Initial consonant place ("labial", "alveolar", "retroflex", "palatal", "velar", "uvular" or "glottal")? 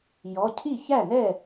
palatal